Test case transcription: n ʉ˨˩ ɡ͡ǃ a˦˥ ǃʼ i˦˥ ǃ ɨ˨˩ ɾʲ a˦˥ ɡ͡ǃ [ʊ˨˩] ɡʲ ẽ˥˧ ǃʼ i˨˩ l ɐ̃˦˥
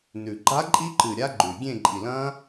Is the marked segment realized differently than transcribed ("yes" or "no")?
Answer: yes